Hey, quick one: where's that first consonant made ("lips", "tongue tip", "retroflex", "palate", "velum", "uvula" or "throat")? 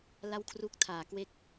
tongue tip